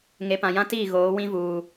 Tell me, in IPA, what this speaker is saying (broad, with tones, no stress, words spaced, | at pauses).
ŋe˨pã˨jã˦tiː˦˨ ɣoː˨˦wĩ˦vuː˨